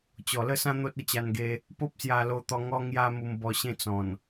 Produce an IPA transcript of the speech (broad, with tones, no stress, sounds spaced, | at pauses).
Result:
t͡ɕ ɔ˨˩ l ə˥˧ s ã˦ n̪ o˦ t̚ ə˥˧ t͡ɕ a˧ n ɡ e˧ | p o˦ p̚ s j a˧ l o˧ t̪ ɔ˧ ŋ ɔ˦ ŋ j a˦ m u˧ m b ɔ˧ ɕ ẽ˥˧ t͡s ɔ̃˨˩ n